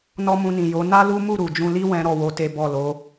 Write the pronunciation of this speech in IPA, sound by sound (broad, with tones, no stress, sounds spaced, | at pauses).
n ɔ˦ m ũ˧ n ĩ˨ j o˨˦ n a˦ l u˦ m u˦˨ ɾ u˨ d͡ʒ ũ˧ l i˦ w ɛ̃˦ ɾ ɔ˦˨ w o˧ t e˦ b ɔ˦˨ l o˨˦